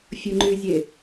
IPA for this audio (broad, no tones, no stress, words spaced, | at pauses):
fʲɯŋ͡ǃyzʲe